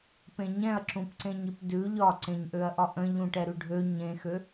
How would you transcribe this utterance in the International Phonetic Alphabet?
p ẽ ɲ ɛ̃ ɐ̯ ǁ ũ p ǀ ẽ ɲ i p d ʉ ʎ ɒ ǀ ẽ ɲ ʔ ø ɐ̯ ʔ ɒ ʔ ə̃ ʎ ũ ʈ ɛ ɾ ʉ ɖʱ ø ɲ ẽ x ø

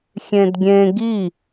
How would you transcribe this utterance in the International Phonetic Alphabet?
xʲ ẽ d ɡʲ ẽ ɡ i

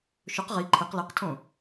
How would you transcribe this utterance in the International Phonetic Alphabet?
ʃ ɵ q ʁ i ǃʰ e q l e q tʰ õ

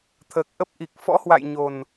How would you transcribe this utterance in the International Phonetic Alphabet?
t̪ʰ əː˨˩ k̚ ʔ ə˦˥ p̚ ʔ i˨˩ k̚ f ɔ̰˧˥ h w a̰˧˨ j ɲ o˨˩ n

